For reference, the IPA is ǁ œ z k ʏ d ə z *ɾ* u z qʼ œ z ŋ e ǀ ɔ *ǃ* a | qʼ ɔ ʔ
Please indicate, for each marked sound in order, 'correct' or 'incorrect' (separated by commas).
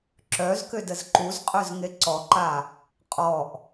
incorrect, correct